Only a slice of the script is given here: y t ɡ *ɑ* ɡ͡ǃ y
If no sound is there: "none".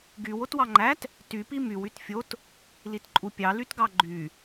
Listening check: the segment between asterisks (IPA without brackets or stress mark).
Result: ɑ